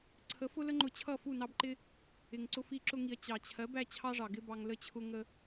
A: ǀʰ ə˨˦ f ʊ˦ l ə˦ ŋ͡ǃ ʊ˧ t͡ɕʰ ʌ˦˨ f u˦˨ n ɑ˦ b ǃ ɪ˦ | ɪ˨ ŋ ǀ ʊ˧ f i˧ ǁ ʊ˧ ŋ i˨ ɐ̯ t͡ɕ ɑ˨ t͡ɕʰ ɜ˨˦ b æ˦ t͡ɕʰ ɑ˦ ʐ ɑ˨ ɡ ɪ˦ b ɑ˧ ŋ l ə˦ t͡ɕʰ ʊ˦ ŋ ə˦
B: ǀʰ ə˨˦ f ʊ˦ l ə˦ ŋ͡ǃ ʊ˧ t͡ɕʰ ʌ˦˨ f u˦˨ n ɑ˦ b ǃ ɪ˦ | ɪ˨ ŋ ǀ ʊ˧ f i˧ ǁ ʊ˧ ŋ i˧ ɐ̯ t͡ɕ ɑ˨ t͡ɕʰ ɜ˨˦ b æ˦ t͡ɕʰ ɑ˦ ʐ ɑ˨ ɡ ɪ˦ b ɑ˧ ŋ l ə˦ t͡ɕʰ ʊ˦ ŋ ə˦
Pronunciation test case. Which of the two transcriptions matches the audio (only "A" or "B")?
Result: A